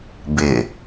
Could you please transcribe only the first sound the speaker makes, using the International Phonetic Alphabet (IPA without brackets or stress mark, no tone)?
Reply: b